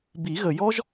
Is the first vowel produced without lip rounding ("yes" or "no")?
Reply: yes